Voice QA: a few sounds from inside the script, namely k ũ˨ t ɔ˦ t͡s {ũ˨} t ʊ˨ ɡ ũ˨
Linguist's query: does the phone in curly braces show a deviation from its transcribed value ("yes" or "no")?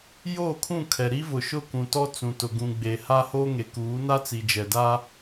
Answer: no